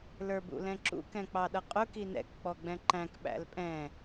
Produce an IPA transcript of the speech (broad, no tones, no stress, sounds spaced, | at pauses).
l ə˞ b ṵ l ɛ̃ ǁ ṵ k ɛ̃ k͡p ɑ ɗ ʌ qʼ ʊ k i n ɛ̰ k k͡p ɔ ɡ͡b ɛ̃ ǃ æ̃ k ɓ æ̰ l pʼ ɛ̃